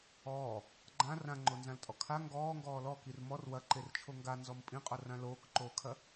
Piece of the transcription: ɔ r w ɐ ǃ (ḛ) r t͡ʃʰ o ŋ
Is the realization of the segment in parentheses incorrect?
yes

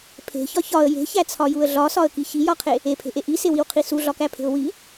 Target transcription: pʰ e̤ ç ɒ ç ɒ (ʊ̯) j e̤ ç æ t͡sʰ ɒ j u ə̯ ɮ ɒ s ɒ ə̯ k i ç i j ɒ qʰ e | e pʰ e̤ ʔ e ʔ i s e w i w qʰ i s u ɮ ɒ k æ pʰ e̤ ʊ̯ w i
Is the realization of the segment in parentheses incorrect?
yes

